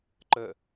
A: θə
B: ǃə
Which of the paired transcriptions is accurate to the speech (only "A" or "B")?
B